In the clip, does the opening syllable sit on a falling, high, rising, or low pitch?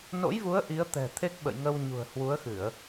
rising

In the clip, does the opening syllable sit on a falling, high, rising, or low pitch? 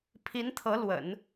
rising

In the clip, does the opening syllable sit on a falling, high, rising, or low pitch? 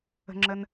low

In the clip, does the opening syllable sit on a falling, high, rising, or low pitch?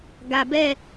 low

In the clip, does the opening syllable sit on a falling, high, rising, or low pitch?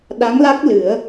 rising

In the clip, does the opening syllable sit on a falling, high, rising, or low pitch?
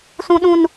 high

